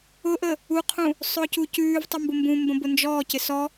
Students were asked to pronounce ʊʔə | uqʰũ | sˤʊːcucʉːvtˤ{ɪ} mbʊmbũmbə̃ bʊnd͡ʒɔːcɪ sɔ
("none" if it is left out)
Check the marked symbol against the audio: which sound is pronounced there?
ʏ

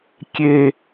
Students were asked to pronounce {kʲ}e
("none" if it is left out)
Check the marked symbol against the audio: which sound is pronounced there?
kʲ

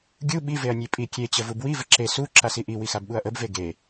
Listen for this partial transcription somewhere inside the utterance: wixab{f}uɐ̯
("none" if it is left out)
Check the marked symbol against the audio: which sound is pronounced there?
ɓ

